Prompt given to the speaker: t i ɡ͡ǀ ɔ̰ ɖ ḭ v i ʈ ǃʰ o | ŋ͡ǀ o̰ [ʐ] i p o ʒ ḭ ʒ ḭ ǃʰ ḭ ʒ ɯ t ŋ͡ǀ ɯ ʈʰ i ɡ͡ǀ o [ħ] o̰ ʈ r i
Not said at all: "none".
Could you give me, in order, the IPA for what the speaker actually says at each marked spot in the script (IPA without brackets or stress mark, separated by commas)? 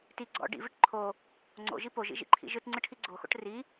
ʒ, x